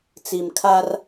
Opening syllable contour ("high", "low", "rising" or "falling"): low